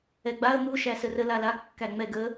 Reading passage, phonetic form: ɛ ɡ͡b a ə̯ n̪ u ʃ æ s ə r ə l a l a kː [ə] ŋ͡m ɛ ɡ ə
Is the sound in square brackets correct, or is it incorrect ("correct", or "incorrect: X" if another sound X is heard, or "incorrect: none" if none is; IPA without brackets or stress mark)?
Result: incorrect: æ